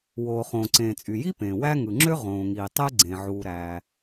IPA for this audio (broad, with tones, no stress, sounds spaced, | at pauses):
w oː˩ χ õː˩ ǀ ẽː˩ t͡sʼ y˩ j i˥ p ẽː˩ w æ˥ ŋ ɯ˩ ŋ͡ǁ ø˥ ʁ õː˩ ŋ iː˩ tˤ e˥ ɡ͡ǀ ẽ˩ ʕ uː˩ ɾ æː˩